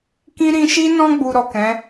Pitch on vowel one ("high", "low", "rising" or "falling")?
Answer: high